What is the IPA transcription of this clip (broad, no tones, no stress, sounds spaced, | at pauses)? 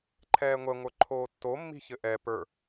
ǃʰ ɛː ŋʷ ɛ ŋʷ ə˞ ǃʰ oː tː o mː i̤ ç ɘ ʔ ɛ p ə˞